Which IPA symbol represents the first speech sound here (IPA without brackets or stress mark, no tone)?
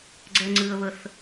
ɡ͡ǀ